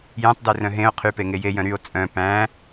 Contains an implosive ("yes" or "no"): no